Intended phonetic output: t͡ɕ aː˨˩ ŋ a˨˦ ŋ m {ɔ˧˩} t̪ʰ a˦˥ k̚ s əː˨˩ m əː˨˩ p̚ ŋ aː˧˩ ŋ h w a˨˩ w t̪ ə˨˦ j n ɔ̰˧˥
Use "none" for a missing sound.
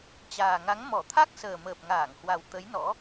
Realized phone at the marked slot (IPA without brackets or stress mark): ɔ˧˩